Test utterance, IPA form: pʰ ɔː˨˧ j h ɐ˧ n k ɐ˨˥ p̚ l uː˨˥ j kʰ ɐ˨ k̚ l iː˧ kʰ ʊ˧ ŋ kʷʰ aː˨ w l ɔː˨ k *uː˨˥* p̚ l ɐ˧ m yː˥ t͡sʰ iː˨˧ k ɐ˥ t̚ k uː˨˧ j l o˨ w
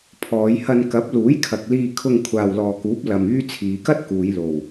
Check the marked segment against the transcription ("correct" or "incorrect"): correct